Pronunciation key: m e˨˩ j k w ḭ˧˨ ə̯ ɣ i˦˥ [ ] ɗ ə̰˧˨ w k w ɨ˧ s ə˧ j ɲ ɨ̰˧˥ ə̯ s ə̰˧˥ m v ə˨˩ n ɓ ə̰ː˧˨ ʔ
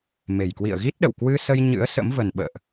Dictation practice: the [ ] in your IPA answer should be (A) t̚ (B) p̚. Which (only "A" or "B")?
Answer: A